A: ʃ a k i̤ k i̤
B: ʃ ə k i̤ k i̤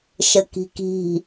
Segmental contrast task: B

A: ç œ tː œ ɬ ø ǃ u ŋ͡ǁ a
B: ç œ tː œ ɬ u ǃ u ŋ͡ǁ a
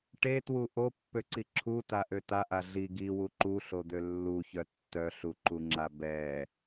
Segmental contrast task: B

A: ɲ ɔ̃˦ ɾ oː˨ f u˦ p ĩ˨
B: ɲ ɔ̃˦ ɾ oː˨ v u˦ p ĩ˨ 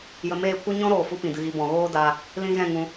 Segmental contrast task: A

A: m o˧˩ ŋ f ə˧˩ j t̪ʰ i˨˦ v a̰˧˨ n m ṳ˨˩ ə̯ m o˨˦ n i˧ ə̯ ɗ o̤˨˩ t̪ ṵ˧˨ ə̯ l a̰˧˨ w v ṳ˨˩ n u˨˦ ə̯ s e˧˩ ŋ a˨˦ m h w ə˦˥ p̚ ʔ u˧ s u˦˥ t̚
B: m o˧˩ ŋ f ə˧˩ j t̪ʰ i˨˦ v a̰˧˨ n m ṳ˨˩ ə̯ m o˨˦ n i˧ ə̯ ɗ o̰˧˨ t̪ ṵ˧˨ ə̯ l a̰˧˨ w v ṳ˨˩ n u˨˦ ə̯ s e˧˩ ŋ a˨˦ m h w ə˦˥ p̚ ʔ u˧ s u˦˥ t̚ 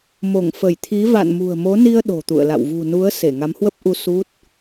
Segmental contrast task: A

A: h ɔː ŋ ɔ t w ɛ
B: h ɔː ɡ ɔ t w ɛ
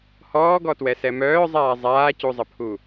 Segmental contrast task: B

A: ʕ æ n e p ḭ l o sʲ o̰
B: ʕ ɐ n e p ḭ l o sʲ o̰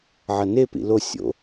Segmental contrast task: B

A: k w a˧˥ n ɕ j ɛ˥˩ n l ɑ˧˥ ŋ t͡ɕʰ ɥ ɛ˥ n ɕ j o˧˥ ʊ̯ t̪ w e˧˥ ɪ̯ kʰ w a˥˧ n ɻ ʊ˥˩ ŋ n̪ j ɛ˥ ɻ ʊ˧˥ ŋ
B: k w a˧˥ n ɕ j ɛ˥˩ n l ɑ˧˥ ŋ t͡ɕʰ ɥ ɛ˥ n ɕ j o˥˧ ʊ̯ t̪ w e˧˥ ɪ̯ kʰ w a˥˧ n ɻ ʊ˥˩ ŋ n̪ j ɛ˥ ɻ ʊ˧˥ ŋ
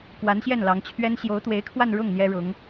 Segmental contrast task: A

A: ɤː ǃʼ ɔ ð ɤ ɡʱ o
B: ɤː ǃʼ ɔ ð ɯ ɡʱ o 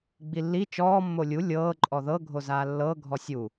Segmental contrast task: A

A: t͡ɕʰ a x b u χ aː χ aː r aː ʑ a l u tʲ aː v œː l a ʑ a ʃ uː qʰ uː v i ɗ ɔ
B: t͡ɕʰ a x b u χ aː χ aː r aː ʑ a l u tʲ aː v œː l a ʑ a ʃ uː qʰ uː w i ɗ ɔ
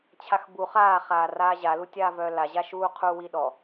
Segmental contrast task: B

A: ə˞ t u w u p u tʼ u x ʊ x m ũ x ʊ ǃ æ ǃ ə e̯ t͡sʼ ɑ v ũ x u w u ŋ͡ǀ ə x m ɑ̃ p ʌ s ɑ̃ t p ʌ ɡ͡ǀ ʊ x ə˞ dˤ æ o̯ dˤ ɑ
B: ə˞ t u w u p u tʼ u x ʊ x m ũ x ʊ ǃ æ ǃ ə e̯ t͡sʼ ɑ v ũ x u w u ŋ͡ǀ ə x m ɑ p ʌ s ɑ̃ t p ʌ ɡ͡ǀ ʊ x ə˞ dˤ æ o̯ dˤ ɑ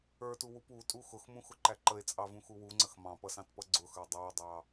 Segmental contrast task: A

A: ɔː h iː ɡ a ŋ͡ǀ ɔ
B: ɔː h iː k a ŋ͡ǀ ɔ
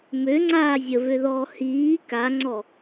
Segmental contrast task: B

